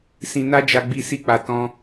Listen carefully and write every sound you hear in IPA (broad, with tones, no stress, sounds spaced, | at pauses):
s ĩ˧ n a˦ d͡ʒ a˧ ɡ͡b i˧ s i˧ k͡p a˨ t ɔ̃˧